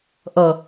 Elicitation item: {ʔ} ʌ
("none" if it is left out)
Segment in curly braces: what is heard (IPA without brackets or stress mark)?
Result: ʔ